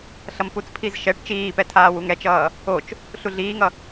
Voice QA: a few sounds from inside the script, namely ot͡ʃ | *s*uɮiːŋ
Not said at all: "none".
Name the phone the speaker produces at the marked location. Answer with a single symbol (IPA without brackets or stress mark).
ɬ